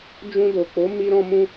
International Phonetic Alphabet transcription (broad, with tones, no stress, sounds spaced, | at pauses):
d͡ʒ ũ˧ d o˨ k͡p o˨˦ m i˦ ɾ ɔ̃˦ m ũ˦